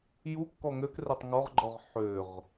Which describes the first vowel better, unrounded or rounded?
rounded